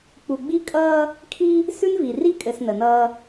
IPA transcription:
k͡p u˨ ɡ͡b i˦ kʼ ʌː˦ | kʰ i˦ | s ʉ˦ n v i˨ r i˦ kʼ ɘ˨ s n ə˨ n ʌː˦

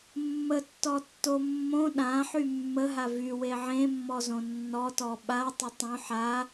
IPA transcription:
mː ə tː ɔ tː o mː õ ɗ ã ħ y mː ə ɦ a v y w e ʕ ẽ mː ɔ z õ nː ɔ t ɔ ɓ a tˤ ə tˤ õ ħ a

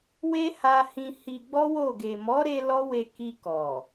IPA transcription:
w e˦ h a˧ h ĩ˧ h i˧ ɡ͡b ɔ˦ w o˦˨ ɡ e˨ m ɔ˨˦ ɾ e˧ l ɔ˦ w e˧ k i˧ k ɔ˨

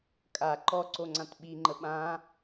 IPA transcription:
kʼ a ǃ ɔ ǀ o ŋ͡ǀ ã t ɓ i ŋ͡ǃ ə ɓ ã

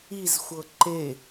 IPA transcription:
i z xʷ ɤ ǃ e

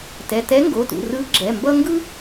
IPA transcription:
t ɛ˩˧˩ t ɛ˧˥ ŋ ɡ o˩˧˩ t ṵ˩˧˩ r ɯ˧˥ ɡ͡ǁ ɛ˩˧˩ m b ʌ˥ ŋ ɡ ɯ˥

